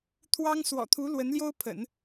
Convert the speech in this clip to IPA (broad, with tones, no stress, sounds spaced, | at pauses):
t̪ʰ w ɑ˥ ŋ s w ɔ̰˨˩ t̪ʰ u˧˥ l w ə˧˥ n l j o˥ ʊ̯ pʰ ə̰˨˩˦ n